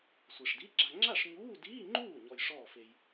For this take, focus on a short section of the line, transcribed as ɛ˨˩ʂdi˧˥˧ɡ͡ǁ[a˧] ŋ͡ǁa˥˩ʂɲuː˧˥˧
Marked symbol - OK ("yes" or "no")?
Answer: yes